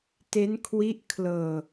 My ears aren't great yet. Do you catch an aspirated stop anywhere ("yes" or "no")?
yes